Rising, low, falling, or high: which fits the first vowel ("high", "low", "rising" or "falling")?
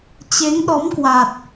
rising